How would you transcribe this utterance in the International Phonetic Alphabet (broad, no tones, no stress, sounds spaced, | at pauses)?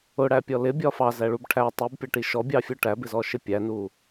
ʊ ɽ æ pʲ ɔ l ɪ bʲ ɒ f ɑ z æ ɭ u b ʈʰ æ tˤ i b pʲ ʌ ʈ i ʃ ɔ bʲ ɑ fʲ u ʈ æ b ɪ z ɔ ʃ ɪ pʲ æ n u